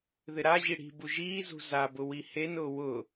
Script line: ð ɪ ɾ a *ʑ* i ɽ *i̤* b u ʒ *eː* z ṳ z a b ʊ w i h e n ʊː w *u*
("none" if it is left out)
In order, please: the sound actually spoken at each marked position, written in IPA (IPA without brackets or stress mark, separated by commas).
ʑ, i̤, iː, ʊ